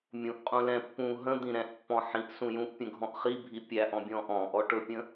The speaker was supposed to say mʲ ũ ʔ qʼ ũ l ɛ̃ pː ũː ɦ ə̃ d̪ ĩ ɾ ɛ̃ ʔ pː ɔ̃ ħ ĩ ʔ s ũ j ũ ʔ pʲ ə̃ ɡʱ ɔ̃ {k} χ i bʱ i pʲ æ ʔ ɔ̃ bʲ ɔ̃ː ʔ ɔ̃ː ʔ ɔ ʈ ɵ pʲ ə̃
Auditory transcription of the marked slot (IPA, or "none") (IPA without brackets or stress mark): ʔ